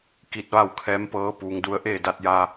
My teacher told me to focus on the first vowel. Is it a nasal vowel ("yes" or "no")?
no